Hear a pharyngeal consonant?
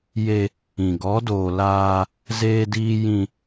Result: no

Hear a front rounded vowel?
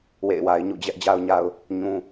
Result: no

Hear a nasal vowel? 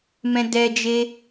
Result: yes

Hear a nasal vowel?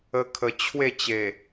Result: no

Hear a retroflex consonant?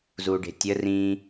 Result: yes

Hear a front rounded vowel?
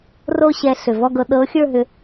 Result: yes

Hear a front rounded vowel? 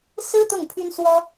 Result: yes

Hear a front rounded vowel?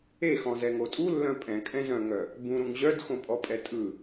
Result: yes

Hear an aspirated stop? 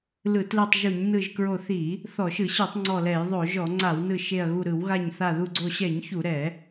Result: no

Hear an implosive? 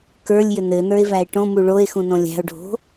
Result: no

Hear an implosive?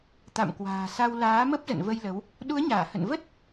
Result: yes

